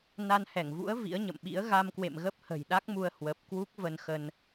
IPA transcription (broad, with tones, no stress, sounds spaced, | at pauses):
n a˧ n h ɛ˧˩ ŋ v ṵ˧˥ ə̯ v ḭ˧˥ ə̯ ɲ ə̰˧˨ m ɓ ḭ˧˥ ə̯ ɣ a˧ m k w ḛ˧˨ m ɣ ə˦˥ p̚ h ə̤˨˩ j ɗ a˦˥ k̚ m u˧ ə̯ h w ə˨˩ p̚ k w u˦˥ k̚ v ə˧ n x ə˧ n